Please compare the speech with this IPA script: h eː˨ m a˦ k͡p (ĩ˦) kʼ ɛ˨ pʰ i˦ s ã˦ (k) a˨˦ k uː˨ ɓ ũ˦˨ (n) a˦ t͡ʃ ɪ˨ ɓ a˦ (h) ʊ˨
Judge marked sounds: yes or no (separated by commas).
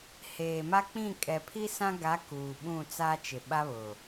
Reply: no, no, no, no